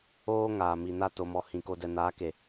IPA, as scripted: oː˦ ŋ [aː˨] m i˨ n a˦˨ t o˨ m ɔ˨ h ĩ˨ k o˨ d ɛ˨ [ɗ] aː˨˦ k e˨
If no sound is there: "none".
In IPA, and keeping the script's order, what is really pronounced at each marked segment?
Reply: aː˨, n

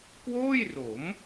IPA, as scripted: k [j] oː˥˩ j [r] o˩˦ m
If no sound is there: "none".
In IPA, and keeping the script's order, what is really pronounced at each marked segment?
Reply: w, r

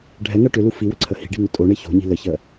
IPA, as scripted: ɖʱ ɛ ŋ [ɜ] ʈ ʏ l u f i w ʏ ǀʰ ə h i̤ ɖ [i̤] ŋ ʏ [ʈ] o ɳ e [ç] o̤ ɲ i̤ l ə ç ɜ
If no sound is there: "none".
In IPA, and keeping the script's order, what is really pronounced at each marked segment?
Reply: ɜ, i̤, tʼ, ç

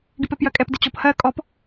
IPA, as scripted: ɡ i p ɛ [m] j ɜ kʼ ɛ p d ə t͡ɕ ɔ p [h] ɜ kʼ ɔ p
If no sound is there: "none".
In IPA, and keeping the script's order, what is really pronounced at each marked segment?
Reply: p, h

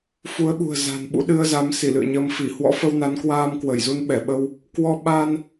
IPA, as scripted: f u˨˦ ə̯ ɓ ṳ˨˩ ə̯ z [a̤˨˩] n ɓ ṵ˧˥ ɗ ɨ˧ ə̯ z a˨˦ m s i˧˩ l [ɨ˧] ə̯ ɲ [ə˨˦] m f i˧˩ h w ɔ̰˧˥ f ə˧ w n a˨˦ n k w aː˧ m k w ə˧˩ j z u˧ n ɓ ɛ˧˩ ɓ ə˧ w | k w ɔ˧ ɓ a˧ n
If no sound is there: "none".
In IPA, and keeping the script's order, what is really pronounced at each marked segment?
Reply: a̤˨˩, ɨ̰˧˨, ə˨˦

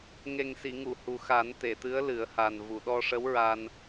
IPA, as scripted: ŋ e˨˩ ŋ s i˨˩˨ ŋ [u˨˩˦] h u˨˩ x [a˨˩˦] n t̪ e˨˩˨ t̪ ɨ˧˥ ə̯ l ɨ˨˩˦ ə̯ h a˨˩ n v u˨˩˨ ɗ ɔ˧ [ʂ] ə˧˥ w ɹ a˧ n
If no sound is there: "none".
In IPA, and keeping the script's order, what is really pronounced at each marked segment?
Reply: u˨˩˨, a˨˩˦, ʂ

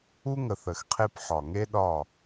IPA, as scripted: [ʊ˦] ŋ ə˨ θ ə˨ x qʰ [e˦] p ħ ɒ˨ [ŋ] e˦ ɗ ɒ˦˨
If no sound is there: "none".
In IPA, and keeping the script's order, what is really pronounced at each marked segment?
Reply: u˦, e˦, ŋ

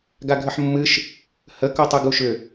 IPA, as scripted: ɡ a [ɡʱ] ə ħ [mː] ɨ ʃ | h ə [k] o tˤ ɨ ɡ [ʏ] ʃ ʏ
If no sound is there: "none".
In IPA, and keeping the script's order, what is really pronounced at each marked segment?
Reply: ɡʱ, mː, k, u

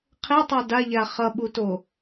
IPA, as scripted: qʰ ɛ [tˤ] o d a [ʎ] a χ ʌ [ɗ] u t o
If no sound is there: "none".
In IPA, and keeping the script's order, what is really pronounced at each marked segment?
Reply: tˤ, ʎ, ɓ

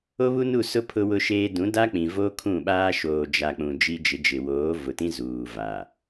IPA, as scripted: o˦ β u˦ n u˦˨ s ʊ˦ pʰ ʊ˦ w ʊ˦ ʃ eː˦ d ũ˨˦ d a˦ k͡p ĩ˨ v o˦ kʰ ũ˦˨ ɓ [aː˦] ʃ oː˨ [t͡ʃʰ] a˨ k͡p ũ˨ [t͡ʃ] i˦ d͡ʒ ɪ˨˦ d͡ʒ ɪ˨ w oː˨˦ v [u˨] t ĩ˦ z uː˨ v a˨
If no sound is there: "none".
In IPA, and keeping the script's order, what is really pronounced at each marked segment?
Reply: aː˦, d͡ʒ, d͡ʒ, ʊ˨

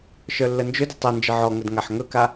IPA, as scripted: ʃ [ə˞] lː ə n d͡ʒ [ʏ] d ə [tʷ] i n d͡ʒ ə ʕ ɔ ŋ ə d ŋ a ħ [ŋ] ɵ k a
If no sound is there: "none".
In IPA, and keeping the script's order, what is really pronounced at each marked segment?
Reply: ə˞, ʏ, tˤ, ŋ

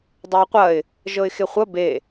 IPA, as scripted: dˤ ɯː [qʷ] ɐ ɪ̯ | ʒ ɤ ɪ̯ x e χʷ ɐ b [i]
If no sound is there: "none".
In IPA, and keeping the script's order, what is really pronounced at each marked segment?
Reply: qʷ, e

